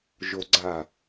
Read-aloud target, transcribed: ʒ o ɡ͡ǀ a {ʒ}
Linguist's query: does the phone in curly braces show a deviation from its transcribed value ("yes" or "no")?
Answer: yes